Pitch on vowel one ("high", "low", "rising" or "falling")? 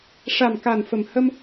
low